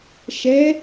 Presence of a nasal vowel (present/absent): absent